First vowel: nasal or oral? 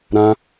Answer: nasal